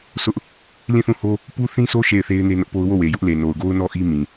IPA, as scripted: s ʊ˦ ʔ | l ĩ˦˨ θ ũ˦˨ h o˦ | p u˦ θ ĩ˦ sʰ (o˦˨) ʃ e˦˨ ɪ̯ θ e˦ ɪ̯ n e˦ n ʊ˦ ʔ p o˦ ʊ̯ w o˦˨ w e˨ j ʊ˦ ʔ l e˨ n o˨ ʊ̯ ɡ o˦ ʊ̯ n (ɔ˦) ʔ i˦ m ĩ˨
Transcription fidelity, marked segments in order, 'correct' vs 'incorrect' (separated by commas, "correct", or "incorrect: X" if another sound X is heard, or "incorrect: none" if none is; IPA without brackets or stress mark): incorrect: o˦, correct